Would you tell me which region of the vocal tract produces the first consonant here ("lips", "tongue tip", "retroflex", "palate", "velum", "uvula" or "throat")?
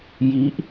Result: palate